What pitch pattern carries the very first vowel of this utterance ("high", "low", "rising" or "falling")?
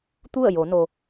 falling